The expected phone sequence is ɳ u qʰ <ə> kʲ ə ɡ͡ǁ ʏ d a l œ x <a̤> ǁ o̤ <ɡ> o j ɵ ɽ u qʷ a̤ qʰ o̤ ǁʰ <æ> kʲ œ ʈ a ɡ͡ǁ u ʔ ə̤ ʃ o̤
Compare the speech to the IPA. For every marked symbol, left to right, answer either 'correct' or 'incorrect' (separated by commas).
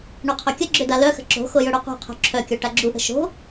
incorrect, incorrect, incorrect, incorrect